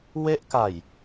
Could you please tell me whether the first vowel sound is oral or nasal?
oral